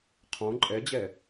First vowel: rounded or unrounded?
rounded